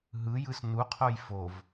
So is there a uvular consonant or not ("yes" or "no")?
yes